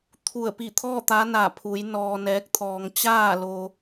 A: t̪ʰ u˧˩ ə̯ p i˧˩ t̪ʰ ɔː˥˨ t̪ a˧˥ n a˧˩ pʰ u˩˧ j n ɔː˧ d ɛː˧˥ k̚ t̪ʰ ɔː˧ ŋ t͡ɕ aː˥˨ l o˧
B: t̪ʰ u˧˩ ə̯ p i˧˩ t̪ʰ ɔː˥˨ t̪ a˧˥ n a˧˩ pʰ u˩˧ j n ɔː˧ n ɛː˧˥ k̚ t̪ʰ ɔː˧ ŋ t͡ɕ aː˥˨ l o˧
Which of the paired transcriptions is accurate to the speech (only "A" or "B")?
B